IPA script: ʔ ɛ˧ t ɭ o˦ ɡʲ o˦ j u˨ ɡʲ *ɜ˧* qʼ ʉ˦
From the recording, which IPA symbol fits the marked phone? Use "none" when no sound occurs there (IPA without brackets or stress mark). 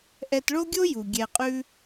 ɛ˧